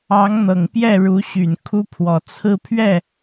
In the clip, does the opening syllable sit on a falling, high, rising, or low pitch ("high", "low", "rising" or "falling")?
rising